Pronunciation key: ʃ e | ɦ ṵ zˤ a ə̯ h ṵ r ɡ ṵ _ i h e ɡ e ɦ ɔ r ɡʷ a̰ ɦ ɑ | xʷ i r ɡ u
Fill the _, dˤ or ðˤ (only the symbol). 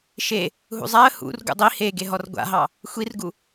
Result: dˤ